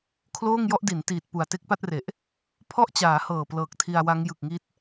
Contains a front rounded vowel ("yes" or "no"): no